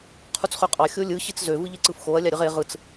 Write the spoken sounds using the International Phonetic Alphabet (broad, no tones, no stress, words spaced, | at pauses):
qʰut͡sχøqʼɑ xʲolʲɯ ɕit͡szø vɯʎeǀɯfxoɐ̯ lʲɑɾʲɯʁe ʁɯt͡s